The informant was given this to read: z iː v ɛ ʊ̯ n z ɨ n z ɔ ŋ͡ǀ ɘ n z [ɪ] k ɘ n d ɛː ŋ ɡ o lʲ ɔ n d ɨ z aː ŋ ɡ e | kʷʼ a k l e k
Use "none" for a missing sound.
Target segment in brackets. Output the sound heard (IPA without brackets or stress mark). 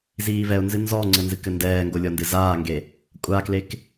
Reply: ɨ